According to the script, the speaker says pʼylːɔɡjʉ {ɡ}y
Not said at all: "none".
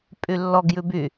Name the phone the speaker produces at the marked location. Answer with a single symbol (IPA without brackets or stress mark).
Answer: b